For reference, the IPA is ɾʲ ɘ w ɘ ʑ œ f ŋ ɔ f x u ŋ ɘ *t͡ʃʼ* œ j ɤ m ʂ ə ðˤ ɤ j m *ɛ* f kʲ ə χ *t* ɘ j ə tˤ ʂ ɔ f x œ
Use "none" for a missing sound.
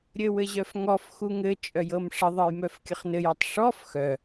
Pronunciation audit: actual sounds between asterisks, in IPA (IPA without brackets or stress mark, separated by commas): t͡ʃʼ, œ, n